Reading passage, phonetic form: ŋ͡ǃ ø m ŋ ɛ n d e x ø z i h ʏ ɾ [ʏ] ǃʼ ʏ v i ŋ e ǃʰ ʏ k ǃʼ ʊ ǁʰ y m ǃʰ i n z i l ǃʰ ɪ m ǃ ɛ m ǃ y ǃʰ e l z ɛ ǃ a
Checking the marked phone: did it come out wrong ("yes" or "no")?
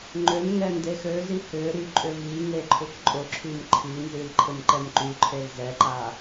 yes